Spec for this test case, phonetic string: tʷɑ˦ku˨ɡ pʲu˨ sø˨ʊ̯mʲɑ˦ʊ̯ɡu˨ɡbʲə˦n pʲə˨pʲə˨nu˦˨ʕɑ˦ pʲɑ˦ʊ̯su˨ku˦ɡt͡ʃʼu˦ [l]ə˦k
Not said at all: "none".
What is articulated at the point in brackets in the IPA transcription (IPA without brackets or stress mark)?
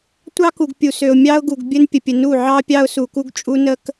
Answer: n